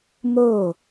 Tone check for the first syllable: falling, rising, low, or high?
falling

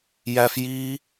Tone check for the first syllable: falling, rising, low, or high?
high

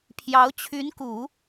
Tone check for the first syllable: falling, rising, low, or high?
rising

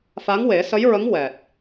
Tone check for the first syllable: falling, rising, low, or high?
rising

